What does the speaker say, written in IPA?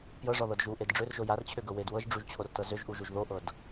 p j ɤ ʐ ɔ ð ɤ d ʒ u ʔ e d ɖ͡ʐ ø r ʒ o j a r t͡ɕʰ ø ɡ ɤ w e d w ɤ ʒ ɖ͡ʐ u ʒ t͡ɕʰ o r t ɤ z ø ʒ ʔ u ʒ u ʒ ð o ʔ ɤ d

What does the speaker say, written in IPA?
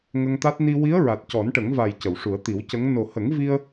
ŋ ə˧ ŋ t̪ a˦˥ t̚ n i˧ w i˧˥ ə̯ ɹ a˨˩ t̚ c ɔ˨˩˦ n ʈ ə˨˩˦ ŋ v a˨˩ j c ə˨˩˨ w ʂ u˨˩˦ ə̯ t̪ i˨˩˦ w c ə˧˥ ŋ n o˨˩ h ə˨˩˦ ŋ v i˧ ə̯

